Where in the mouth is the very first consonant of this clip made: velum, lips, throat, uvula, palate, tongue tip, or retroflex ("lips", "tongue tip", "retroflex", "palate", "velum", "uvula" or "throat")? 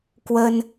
velum